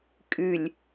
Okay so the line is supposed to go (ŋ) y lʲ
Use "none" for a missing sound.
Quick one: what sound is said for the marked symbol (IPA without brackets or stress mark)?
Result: kʼ